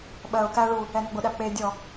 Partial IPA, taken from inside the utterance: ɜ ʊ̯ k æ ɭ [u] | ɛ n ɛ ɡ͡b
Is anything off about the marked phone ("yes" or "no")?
no